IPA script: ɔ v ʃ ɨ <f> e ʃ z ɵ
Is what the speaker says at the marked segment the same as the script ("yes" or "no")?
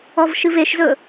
no